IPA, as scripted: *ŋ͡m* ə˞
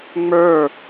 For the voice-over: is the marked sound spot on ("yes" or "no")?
yes